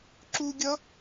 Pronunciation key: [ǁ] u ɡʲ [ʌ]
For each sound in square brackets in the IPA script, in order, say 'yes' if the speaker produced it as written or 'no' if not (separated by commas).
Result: yes, yes